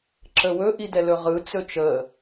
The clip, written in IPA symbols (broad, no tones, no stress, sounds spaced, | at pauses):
ǁ ə w ɵ ʔ i d ɛ l ɵ ʁ ɯ t͡s ɵ t͡ʃ ə